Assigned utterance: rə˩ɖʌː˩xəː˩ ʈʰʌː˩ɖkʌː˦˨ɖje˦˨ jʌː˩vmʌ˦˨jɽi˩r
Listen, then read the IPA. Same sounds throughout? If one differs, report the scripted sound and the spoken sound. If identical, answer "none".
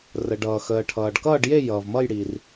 none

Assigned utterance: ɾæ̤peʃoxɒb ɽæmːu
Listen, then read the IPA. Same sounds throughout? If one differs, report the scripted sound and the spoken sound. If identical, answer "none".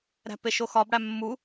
none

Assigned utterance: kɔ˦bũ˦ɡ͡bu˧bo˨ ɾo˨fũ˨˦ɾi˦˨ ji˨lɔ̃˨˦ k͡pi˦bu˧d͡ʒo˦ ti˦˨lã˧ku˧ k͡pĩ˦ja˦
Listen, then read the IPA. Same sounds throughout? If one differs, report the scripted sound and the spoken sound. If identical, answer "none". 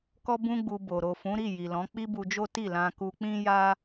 none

